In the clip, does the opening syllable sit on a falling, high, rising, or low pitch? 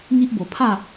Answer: high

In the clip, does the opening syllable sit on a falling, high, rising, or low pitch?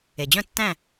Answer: low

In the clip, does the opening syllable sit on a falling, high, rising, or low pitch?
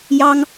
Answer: high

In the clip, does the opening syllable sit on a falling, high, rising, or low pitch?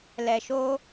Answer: low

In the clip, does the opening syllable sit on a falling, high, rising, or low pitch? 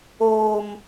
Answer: high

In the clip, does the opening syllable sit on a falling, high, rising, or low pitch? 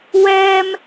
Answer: high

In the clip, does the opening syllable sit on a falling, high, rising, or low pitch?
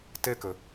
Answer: falling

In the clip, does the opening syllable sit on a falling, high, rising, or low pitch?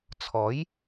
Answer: rising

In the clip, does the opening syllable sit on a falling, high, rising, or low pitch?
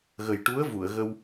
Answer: low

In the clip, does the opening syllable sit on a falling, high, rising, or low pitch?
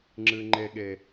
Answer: high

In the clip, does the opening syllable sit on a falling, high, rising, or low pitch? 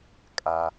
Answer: low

